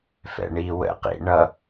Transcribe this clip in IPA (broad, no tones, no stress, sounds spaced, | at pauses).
f ɛ̰ ɳ i w ə̰ q ḭ ɳ ʌ